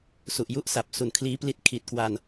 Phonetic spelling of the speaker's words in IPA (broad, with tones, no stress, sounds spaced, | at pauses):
s u˨˩ ʔ j u˦˥ ʔ s a˨˩ p̚ s u˨˩ n kʰ l iː˦˥ p l i˦˥ t̚ kʰ i˨˩ t̚ k w a˧ n